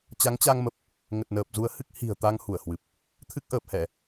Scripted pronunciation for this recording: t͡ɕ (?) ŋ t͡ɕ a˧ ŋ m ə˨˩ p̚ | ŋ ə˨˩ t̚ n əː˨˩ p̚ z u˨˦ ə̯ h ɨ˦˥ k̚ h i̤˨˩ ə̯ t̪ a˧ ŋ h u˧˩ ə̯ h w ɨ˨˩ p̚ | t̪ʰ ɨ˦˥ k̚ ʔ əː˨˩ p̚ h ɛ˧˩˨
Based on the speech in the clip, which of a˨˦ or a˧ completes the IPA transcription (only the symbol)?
a˨˦